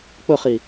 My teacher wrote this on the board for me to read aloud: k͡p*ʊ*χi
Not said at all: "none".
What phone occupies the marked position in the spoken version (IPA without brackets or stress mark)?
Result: ʊ